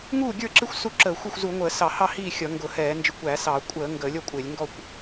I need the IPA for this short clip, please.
ŋuː˥˨ɡʲə˞˥˨ǁɪ˥˨xʷ su˥˨ǁəː˧˩˧xʷə˥˨xʷ zu˧˩˧ŋʷəː˧˩˧sɑ˧˩˧hɑ˥˨ hiː˥˨xʲʌ˧˩˧ ŋɡʊ˧˩˧hɛː˧˩˧ nd͡ʒɪ˧˩˧kʷæ˧˩˧sɑ˧˩˧ kʷʼəː˧˩˧ ŋɡəː˧˩˧lʲʌ˥˨kʷʼɪː˧˩˧lʲ ŋɡɔ˥˨kʷ

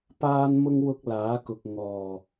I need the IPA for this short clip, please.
paː˥nmʊ˥ŋ wʊ˥k̚laː˨˥kʊ˨k̚ ŋɔː˨˩

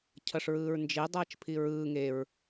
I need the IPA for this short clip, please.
cʰʌʂɹɯːɹnd͡ʒe dˤʌːt͡ʃpʰiɹɯː ŋeɹ

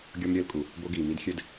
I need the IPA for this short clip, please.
ɡʲɔ˥mɾʲɘː˥lkʼu˩ | bo˥ɡiː˩mi˥d xʲɘ˥d

